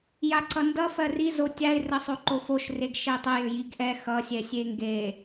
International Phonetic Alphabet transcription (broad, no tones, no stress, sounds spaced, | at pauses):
j a ǀʰ ʌ n d ʌ f ɜ r i z o tʲ a ɪ̯ r ə sˤ o ǃ o f o ʃ r e ɡ ʃ e tˤ ə j ʏ j i ɡ ʔ ɛ x ʌ sʲ ɛ sʲ e ŋ ɡ e